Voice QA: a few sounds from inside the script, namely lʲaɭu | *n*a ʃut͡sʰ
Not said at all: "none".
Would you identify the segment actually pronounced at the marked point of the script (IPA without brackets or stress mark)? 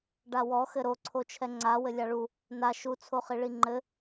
n